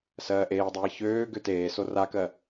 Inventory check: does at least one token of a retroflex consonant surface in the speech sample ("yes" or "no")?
no